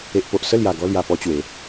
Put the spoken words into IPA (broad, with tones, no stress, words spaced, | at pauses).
e˨ʔpo˨ʔ sə˥˧lja˨˩ ɡɔ˧lja˨˩pɔ˧ t͡ɕwe˨˦